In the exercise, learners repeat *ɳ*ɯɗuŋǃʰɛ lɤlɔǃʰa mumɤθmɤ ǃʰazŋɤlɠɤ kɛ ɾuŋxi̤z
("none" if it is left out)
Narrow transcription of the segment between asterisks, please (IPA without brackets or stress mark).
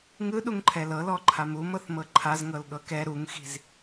ŋ